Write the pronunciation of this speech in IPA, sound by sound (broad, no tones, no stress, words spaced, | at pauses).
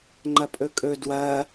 ŋ͡ǃɐpʼɵkʼɵ dwɐ